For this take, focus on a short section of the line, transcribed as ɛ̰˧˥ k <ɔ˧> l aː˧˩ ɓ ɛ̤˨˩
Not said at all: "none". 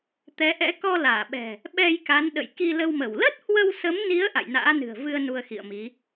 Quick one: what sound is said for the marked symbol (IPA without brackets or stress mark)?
ɔ˧